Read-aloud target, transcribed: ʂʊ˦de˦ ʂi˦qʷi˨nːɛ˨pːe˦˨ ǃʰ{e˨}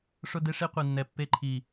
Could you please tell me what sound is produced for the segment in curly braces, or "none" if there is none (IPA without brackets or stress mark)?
i˨